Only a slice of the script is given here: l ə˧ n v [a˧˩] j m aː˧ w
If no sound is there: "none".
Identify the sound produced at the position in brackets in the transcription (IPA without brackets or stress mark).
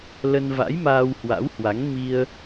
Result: a̰˧˥